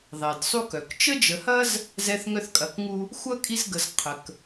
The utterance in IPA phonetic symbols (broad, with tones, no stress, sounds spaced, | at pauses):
ðˤ ɛ˩ d sˤ u˥ k œ˩ k t͡ʃ ə˥ d͡ʒ ə˨ h ɐ˥ z | z ɛ˦ θ ŋ œ˦ θ kʼ ɐ˨ k ŋ u˦ | xʷ ɐ˥ kʼ i˦ z ɡ ə˨ z qʰ ə˩ k